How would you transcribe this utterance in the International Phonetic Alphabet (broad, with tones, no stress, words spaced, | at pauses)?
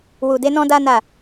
wu˨de˨˦ nɔ̃˦da˦na˦˨